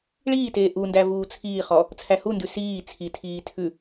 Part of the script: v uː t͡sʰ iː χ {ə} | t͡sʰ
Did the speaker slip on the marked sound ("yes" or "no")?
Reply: yes